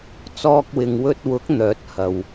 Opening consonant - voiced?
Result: no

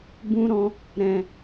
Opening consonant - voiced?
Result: yes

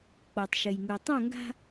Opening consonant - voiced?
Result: no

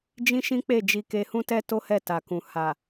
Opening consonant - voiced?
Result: yes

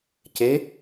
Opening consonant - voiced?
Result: no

